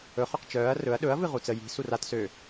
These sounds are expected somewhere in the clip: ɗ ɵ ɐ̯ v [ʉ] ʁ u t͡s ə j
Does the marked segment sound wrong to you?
yes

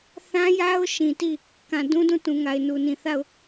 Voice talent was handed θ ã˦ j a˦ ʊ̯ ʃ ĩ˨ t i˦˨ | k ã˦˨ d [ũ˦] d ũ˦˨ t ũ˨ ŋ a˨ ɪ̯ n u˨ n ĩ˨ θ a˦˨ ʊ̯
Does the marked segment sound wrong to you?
no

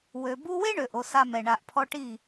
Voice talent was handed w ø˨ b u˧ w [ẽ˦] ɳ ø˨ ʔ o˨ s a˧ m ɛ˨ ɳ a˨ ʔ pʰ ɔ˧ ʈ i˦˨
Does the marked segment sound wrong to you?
yes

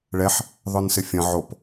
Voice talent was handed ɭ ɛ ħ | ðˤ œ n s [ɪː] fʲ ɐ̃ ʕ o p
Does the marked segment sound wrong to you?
yes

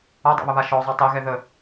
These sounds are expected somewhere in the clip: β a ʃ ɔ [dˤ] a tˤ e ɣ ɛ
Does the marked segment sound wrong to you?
yes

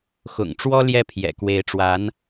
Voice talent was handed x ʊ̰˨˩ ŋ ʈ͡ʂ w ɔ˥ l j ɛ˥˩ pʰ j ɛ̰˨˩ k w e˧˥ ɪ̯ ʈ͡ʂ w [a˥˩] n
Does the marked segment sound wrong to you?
yes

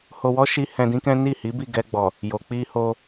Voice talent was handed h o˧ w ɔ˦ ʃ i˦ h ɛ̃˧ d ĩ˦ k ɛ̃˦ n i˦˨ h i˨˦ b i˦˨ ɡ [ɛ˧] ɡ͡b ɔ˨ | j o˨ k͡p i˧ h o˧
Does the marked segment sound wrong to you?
no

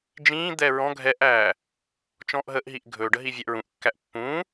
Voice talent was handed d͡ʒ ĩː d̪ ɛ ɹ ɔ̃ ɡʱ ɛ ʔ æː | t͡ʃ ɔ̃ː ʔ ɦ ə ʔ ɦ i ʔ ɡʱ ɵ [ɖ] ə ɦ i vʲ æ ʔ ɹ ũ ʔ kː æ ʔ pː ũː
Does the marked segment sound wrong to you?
no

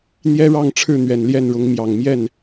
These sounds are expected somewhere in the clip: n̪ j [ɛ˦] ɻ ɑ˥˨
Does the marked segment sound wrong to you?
no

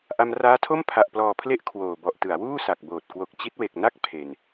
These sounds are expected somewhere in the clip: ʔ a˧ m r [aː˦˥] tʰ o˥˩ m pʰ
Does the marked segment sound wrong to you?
no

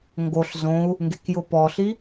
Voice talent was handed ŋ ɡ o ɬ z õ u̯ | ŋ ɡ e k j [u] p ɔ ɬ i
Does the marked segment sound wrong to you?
yes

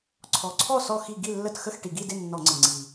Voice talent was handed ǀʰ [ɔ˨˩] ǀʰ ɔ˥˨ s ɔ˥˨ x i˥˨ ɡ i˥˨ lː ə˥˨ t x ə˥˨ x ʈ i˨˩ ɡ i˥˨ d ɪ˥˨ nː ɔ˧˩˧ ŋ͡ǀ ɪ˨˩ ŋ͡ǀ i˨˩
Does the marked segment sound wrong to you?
no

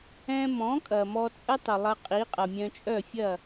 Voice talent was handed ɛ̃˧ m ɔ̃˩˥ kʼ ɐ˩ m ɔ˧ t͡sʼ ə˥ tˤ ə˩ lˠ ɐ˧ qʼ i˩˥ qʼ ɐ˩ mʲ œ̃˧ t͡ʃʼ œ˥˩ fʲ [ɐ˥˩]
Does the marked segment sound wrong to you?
no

